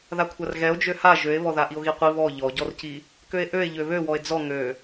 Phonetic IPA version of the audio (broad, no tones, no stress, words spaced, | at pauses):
ðakʷʰarɣɛo̯ d͡ʒøha ʒøe̯βɔ ðaʔio̯ɣiqʷi βɔ ʎɔɟɔrci | køe̯ʔøe̯ ʎøβøwɔe̯ d͡zɔ ŋø